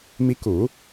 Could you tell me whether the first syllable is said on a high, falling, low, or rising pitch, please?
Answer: rising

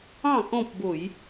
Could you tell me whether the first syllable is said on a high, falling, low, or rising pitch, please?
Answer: falling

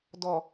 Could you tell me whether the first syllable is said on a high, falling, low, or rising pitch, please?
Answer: low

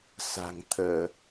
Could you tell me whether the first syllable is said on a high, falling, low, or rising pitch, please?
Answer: low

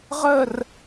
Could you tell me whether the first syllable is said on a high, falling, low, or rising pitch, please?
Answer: falling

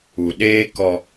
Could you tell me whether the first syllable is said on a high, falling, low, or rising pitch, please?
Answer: low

